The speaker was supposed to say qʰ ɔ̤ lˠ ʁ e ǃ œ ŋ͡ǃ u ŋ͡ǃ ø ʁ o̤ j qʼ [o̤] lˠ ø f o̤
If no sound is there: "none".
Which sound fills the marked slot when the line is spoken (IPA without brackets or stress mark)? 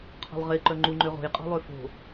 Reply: ɔ̤